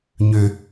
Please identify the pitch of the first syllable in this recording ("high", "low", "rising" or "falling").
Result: low